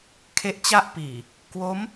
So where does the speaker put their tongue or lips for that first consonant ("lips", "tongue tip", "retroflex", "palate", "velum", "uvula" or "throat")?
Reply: velum